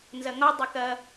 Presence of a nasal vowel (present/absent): absent